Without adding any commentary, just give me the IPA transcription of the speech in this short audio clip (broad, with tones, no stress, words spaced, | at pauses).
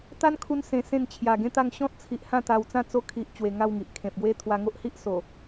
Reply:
t̪a˦nkʰu˧nsẽ˨˩sẽ˧n t͡ɕʰja˨˩ɡẽ˥˧t̪a˥˧ŋ ɕɔ̃˦t̚t͡sʰi˨ʔ hã˥˧t̪a˧wt͡sã˥˧ t͡so˧kʰi˨ʔ t͡ɕwe˧ŋa˥˧wŋi˨ʔ kʰẽ˨p̚ɡwe˦ t̪ʰwa˧ŋo˦ʔhi˦ʔso˨˩